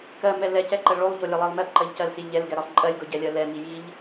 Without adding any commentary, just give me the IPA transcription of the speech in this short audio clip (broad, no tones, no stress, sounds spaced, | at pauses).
k ɜ m ɛ l ɛ c ɛ ǃ ɜ ɭ o lˠ ʎ o lʲ ɛ lˠ ɜ lˠ m ɛ p ǃ ɜ ʎ c ɜ l s i lʲ ʎ ɛ l ɡ ɛ ɾ ɜ lˠ ǃʼ ɜ lʲ ɡ o ɟ ɛ lʲ ɜ l ɛ m i j i ʎ